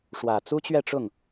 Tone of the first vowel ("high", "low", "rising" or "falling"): low